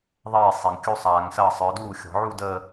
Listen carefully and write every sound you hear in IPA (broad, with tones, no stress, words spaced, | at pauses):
ðˤeː˥˩ sˤe˨˩ŋkʲu˥˧sˤaː˨˩˦ŋsɐː˥˩ sˤə˞˨˦duː˥˩xʲɔ̤˨˩˦ʕu˥˧ dəː˥˧